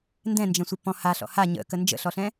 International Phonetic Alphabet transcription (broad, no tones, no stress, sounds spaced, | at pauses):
n d ɛ̃ n d͡ʒ ɛ̃ sʷ ə p ɔ̃ h a ɬ ɔ̰ h a ɲ ə̰ k ə n d͡ʒ ə̰ ɬ ɔ ɬ ɛ̃